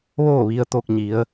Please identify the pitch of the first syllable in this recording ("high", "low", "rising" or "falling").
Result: falling